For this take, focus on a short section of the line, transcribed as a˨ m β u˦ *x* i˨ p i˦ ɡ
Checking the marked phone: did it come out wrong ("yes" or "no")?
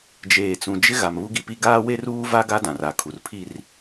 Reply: yes